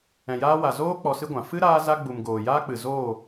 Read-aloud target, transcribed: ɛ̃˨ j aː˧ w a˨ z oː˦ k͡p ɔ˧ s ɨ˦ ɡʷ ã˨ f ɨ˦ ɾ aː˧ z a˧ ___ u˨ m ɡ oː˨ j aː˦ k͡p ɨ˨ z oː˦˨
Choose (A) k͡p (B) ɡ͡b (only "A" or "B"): B